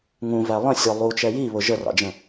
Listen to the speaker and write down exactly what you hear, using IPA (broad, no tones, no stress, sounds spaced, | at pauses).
ŋ ũ v æ lˠ ə̃ sʲ ɔ lˠ u t͡ʃ ɛ j i β ʊ ʒ ə r ɑ̰ d͡ʒ ə̃